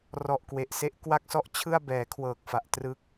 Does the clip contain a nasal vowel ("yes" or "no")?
no